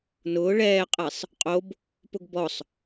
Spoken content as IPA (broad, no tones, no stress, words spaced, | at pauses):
nʊː ɭɛːqʼɛsˤ | qʼob | pʊɡbɔsˤ